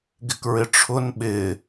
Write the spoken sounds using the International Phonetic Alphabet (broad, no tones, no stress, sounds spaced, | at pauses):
ɡ ɪ k ɹ ɪ ʈ͡ʂʰ ʊ n ɓ ɪ